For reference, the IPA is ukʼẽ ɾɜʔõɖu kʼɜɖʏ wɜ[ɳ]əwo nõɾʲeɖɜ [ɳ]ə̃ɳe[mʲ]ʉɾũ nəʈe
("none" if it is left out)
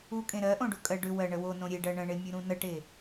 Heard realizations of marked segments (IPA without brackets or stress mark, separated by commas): ɳ, ɳ, mʲ